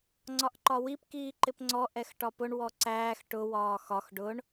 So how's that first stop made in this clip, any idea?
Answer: click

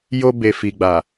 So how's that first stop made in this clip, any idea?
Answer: plain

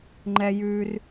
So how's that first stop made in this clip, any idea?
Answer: click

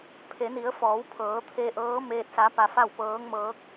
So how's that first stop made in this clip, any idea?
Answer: aspirated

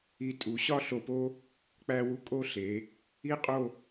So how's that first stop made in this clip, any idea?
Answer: ejective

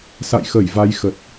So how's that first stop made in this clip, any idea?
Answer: plain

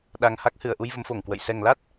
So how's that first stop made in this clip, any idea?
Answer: implosive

